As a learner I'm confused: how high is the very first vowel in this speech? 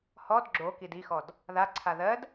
mid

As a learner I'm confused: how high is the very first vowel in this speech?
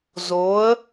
mid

